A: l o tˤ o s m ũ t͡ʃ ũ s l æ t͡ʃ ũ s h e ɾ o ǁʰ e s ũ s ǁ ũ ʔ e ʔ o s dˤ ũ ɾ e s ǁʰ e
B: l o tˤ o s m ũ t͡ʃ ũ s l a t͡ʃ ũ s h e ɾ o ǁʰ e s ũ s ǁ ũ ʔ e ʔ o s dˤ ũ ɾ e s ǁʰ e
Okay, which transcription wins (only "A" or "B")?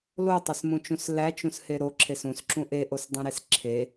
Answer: A